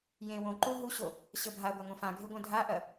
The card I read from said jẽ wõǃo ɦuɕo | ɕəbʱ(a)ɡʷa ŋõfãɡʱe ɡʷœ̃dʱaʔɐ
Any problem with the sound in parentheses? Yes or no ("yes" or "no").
no